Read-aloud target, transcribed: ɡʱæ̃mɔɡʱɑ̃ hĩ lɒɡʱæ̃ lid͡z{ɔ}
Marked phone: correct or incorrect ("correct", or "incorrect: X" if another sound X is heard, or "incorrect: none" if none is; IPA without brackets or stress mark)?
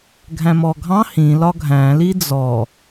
correct